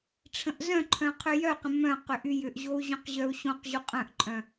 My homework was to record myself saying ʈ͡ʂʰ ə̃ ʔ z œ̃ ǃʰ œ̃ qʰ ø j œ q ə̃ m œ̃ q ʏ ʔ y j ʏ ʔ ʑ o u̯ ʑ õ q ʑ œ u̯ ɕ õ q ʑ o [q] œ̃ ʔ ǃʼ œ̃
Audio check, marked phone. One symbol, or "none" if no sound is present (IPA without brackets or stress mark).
qʼ